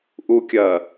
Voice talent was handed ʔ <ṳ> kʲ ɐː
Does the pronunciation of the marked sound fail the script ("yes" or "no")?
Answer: yes